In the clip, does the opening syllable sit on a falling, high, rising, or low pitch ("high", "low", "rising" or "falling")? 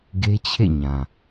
high